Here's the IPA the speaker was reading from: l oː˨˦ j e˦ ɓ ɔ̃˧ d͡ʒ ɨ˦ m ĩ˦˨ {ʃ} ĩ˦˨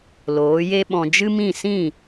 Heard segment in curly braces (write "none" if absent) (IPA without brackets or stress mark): s